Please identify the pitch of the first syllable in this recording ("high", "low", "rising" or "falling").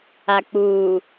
low